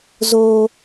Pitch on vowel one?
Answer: low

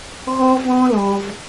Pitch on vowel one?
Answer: high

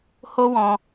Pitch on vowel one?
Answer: high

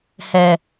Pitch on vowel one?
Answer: low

